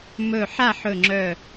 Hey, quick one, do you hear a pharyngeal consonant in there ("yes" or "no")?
yes